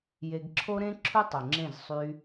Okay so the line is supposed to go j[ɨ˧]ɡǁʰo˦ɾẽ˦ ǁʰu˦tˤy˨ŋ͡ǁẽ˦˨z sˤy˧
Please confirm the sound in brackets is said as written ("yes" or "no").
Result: no